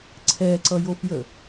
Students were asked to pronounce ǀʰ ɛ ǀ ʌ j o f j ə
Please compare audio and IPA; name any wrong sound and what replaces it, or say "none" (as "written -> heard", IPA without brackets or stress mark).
none